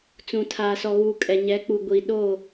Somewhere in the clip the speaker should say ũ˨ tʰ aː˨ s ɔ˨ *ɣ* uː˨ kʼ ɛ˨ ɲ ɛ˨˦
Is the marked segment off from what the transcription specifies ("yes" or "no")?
no